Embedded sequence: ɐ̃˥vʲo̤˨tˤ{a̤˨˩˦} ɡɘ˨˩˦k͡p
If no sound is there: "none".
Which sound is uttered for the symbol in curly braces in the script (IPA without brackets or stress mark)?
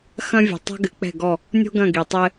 a̤˥